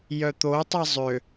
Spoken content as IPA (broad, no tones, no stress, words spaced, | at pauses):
jœt̪otˤi zˤø